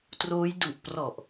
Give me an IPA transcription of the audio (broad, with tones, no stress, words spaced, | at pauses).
troː˦˥j du˨˩ʔprɔ˨˩ʔ